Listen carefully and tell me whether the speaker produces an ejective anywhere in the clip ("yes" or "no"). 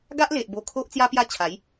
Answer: no